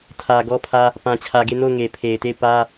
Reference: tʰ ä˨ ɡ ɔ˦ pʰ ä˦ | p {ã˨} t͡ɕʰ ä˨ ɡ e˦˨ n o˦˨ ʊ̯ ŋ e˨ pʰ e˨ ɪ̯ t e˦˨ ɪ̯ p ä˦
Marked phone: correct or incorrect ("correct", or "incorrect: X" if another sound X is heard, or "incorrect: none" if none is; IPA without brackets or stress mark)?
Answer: correct